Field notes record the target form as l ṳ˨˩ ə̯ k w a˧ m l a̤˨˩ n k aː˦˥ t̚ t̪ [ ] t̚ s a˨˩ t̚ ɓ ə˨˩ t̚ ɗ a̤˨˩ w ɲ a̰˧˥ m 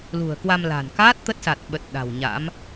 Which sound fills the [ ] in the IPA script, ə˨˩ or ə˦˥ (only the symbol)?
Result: ə˦˥